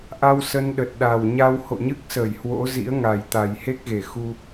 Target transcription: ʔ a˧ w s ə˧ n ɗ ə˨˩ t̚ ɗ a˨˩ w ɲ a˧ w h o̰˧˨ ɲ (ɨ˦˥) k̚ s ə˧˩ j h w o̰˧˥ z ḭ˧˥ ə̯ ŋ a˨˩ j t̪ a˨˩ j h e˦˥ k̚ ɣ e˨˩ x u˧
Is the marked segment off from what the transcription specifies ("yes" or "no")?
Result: no